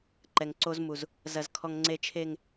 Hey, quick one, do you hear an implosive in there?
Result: no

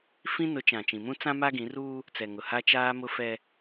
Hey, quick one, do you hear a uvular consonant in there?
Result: no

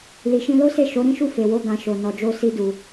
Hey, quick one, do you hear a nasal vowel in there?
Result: yes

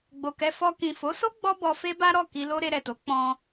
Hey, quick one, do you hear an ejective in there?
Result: no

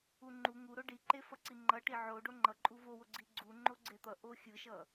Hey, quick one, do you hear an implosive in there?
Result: no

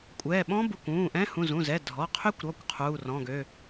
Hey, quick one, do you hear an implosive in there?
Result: yes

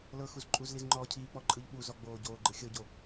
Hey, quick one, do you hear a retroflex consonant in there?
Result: no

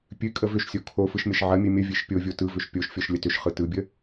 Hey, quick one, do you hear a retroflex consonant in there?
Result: no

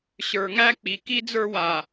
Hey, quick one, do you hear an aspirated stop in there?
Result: no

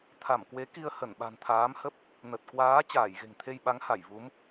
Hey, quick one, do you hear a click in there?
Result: no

